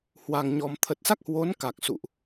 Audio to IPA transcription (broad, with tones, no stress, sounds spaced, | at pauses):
h w a˨˩ ŋ ɲ ɔ˨˩ m t̪ʰ ə˨˩ t̚ s a˦˥ k̚ h w o˨˦ n k a˨˩ k̚ s ṵ˧˨ ʔ